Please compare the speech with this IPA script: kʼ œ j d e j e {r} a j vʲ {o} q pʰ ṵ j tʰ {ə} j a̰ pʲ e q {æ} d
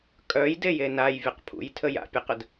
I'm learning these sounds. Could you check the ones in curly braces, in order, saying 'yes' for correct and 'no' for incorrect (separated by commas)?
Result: no, yes, yes, no